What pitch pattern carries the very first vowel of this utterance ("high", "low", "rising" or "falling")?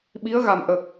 rising